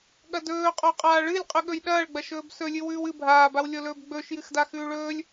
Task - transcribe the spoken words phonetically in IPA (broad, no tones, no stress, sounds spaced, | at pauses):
ɠ ɐ d ɵː qʼ o qʼ aː ɭ ɨ lʲ qʼ ʉ ɠ ɵ j ɗ ɐː ɭ ɡ͡b ɐ ʃ ɵː b s ɵ lʲ ɨ w ʉː w ɨ bʱ aː b a w lʲ o l ɵː b ɡ͡b ɵː ʃ j ɨ x d a x ʉː ɭ ɵː lʲ